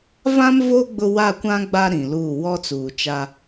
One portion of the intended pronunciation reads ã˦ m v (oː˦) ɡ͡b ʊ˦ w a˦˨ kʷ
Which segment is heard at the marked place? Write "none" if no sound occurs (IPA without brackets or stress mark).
o˦